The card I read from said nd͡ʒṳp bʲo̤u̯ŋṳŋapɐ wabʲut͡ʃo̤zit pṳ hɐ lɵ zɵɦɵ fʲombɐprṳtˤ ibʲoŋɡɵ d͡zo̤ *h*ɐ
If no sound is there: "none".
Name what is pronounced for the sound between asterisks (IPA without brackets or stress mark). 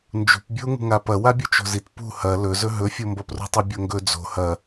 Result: h